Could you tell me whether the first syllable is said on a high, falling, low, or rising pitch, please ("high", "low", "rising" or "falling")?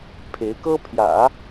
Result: rising